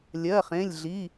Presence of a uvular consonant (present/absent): present